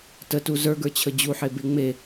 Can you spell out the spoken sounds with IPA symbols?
t ə t u z ə˞ ɡ ə˞ t͡ɕʰ ə d͡ʑ u ħ e b e ŋ͡m e

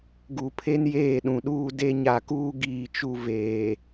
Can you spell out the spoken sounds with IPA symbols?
ɡ u˨ pʰ e˦ n j eː˦˨ ɗ ũ˨ ɗ uː˦ d e˦ ɲ a˨ k uː˦ ɡ iː˦˨ t͡ʃ u˦ v eː˨

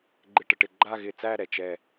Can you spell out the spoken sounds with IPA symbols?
ɡ͡ǃ ɪ˧˩ ʈ ə˩ ʈ ɪ˧˩ ɡ͡ǃ a˥˧ ɣ ɪ˧˩ t͡s æ˥˧ ɾ ɛ˩ t͡ʃ ɛ˧˩

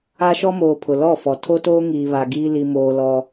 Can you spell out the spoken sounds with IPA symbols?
a˦ ʃ ɔ˦ m oː˨ pʰ ʊ˨ l ɔ˦˨ f ɔ˨ tʰ o˦ t oː˦ ŋ iː˨ β a˨ ɡ iː˦ l i˦ m oː˦ l ɔ˦

